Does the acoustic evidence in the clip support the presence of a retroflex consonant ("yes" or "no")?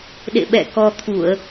no